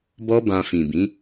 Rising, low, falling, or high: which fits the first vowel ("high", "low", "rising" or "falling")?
high